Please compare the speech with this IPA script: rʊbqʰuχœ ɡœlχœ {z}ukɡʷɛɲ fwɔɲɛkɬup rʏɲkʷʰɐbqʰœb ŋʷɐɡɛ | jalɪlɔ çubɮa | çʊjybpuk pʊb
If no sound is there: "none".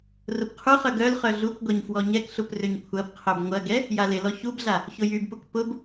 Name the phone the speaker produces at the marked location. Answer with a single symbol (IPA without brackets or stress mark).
ɮ